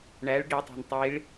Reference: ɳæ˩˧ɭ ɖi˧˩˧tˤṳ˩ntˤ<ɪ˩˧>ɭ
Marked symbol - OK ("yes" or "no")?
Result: no